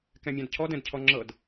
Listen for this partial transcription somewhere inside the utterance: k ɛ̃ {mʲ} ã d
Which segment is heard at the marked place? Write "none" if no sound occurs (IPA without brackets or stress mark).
mʲ